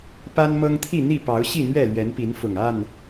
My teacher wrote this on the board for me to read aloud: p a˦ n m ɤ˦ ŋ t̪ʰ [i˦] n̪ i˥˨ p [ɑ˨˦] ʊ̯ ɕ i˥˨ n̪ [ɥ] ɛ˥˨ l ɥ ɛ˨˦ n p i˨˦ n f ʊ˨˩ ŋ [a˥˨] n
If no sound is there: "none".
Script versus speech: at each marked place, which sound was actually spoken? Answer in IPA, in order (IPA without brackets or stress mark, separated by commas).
i˥˨, ɑ˨˦, ɥ, a˥˨